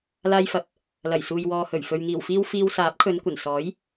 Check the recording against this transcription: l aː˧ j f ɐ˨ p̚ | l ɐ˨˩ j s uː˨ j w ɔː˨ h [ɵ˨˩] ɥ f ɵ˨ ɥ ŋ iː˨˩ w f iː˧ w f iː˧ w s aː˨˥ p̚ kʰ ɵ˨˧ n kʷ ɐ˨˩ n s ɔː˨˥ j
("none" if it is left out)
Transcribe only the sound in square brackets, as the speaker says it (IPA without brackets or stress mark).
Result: ɵ˨˩